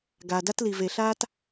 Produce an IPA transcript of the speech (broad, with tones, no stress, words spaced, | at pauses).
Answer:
ɡaː˩da˥tli˩ ve˩ɬaː˥t